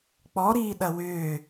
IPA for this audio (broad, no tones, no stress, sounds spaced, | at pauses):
k͡p ɔ ɾ iː ɗ ɐ w ʏː